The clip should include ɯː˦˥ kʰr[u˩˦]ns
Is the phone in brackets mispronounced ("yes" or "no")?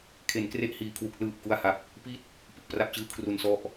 no